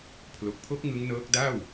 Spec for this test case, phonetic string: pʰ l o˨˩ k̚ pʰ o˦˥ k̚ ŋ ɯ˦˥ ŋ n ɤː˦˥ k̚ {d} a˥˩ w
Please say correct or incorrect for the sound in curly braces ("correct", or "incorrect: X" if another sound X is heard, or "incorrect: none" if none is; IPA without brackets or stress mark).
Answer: correct